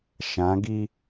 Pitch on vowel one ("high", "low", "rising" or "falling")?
rising